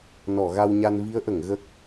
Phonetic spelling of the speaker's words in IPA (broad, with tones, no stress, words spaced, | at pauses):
nɔ˨˩˨ɣa˧wɲa˧n vi˧˥ə̯ʔə˨˩˨ŋ ɣə˦˥k̚